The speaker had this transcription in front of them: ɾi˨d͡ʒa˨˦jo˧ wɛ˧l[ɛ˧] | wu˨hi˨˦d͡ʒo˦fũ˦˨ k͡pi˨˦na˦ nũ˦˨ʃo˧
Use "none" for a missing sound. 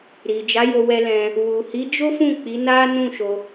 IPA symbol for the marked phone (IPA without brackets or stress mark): ɛ̃˧